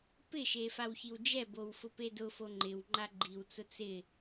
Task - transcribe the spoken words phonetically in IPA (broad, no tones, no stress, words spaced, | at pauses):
pɪʃe fawçiwd͡ʒɛbow fʊpedʊfo ŋ͡ǃɪw ŋ͡ǃaɡ͡ǃiwt͡sʊ t͡sɪ